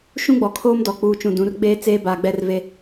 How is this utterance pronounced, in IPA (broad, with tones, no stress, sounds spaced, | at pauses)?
ʃ ũ˦ ɡ͡b ɔ˨ kʰ oː˦ m d ɔ˨ k͡p uː˨ t͡ʃ ũ˨ d ũ˨˦ r ɡ͡b eː˦ t͡s eː˦ b aː˨ ɡ͡b ɛ˦ r v e˦